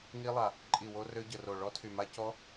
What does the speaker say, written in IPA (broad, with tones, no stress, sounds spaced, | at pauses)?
ŋ i˦˥ lˠ a˧˩ | ǃʼ i˧˩ w o˦˥ r ø˦˥ ɟ ə˧˩ r o˧˩ ɭ ɔ˦˥ tʰ y˧˩ m a˦˥ c ɔ˦˥